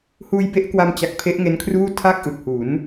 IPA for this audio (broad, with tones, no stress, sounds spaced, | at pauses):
h uː˧ j b e˦˥ ʔ k w a˧ m t͡ɕ a˨˩ k̚ pʰ e˦˥ ʔ ŋ e˦˥ n kʰ r uː˥˩ tʰ a˥˩ k̚ ʔ ɯ˨˩ k̚ h u˩˦ n